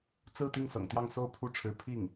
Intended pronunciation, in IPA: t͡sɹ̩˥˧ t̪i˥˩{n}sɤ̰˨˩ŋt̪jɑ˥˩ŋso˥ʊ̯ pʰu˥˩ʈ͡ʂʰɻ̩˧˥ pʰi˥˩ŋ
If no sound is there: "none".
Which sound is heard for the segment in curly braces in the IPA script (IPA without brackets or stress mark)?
ŋ